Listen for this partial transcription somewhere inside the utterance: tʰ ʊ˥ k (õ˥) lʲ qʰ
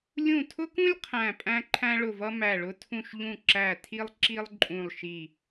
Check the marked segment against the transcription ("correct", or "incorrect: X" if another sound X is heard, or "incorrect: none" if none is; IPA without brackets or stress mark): incorrect: ũ˥